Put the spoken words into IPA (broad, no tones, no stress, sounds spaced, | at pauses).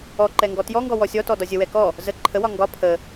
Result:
ɔ ǃ ɛ ŋ ɡ ɔ t j ɔ ŋ ɡ ɔ w ɔ sʲ ɔ t ɔ d ɒ zʲ ə w ɛ k ɔ | z ə ǃʰ ə w ɒ ŋ ɡ ɒ pʰ ə